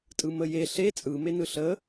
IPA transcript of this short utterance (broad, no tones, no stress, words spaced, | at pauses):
tʼɯməje ɬe t͡sʼɯ menɯɬə